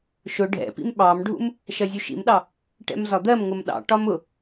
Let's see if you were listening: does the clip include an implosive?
yes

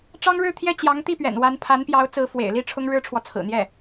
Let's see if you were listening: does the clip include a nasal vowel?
no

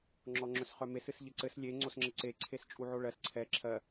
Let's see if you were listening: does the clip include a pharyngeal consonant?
yes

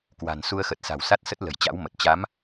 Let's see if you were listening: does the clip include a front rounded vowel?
no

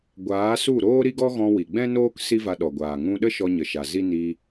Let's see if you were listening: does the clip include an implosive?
yes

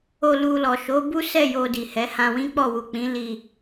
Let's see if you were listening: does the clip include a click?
no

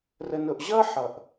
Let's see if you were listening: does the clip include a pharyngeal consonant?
yes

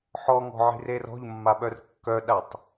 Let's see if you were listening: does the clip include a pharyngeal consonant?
yes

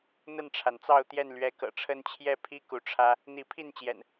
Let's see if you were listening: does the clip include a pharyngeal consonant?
no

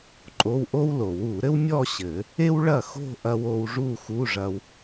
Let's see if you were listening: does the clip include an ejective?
yes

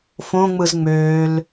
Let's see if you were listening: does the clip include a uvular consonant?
no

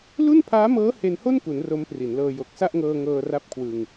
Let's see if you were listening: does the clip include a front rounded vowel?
no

